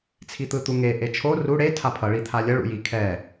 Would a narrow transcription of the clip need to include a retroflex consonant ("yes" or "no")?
yes